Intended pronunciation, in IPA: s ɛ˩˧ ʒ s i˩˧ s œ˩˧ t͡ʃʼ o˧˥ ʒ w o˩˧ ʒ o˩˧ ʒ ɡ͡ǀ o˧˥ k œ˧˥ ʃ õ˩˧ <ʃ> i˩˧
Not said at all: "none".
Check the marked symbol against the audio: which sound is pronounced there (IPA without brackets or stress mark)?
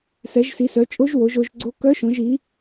ʒ